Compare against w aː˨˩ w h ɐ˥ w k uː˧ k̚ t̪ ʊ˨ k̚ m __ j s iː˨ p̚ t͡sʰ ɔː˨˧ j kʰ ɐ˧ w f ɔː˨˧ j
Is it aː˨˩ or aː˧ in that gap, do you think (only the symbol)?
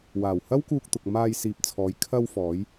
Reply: aː˧